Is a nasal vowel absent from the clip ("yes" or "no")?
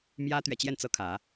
yes